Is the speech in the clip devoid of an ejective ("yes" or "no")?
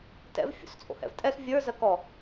no